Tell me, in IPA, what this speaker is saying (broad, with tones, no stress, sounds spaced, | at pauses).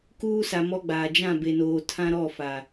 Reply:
k uː˦ s a˨ m ɔ˦ ɡ͡b aː˨ d͡ʒ ã˦˨ b e˨ n oː˨ tʰ ã˦ ɾ ɔ˦˨ f a˨